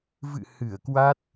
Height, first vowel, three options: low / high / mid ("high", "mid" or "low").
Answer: high